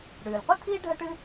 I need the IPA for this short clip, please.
ɽ ʉː˩ l qʷ ɨ˥ t̪ʰ iː˥ ɖʱ ɐ˥ ʈ ɨ˥

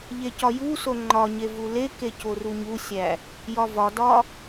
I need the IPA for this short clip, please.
ʎ e c ɒ j u s o ŋ͡ǃ ɒ ɲ e v u l e k e c o r u ɲ u sʲ æ | j ɒ v ɒ d ɒ

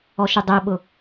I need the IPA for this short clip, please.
ɔ ʃ ʏ dˤ ɛ ɓ ʊ

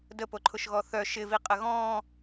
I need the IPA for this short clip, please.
d ə p o ǃʰ ʊ ʃ ɣ ɔ θ œ ʃ ɪ v i qʼ ə ɣ ɔ̃ː

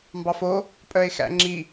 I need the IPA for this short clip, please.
m b ɑ f o | pʼ œ e̯ x æ̰ ŋ͡ǁ i

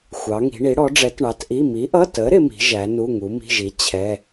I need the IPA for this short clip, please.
xʷ ɑ˨˥ ŋ i̤˨˥ ɳ i˨˥ ɽ ɔ˨˥ ɖ͡ʐ ɛ˨˥ t ɳ ɑ˨˥ t ʔ i˧˥˧ m i˨˥ ʔ ʌ˧˥˧ t ə˨˥ ɾ ɪ˨˥ m i̤˨˥ ʒ æ˨˥ n u˧˥˧ ŋ u˨˥ m i̤˧˥˧ ʒ i˨˥ t͡ɕʰ ɛ˧˥˧

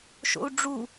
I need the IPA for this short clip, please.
ʃ o̰ u̯ ɖ͡ʐ u

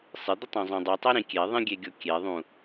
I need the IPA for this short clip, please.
sˤ ɪ d̪ ɪ tˤ õ zˤ õ dˤ u tˤ e ɾ ĩ kʲ e ðˤ ĩ ɡʲ e ɡʲ o kʲ e ðˤ ũ

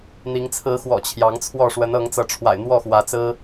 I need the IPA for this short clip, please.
n̪ i˧˥ ŋ t͡sʰ ɹ̩˧˥ x w ɔ̰˨˩ t͡ɕʰ j ɑ˧˥ ŋ t͡sʰ w ɔ˥˩ ʂ w ə˧˥ n ɤ˧˥ ŋ t͡s ɤ˧˥ ʈ͡ʂʰ w a̰˨˩ ɪ̯ n̪ w ɔ˥˩ x w ä˧˥ t͡s ɹ̩˥

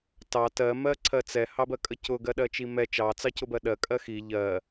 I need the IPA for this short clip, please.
t ɑ t ɜ m ɜ ǀʰ ɜ t͡s ɛ h ɑ b ɜ kʼ ə c ʊ ɡ ɜ ɗ ɜ t͡ʃ i m ɛ t͡ʃ ɑ t͡s ɑ c ʊ b ɜ ɗ ɜ kʼ ɜ x i ʎ ɜ

